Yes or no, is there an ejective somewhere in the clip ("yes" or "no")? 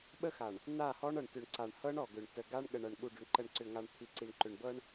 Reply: no